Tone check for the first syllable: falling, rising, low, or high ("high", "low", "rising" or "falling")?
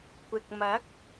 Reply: low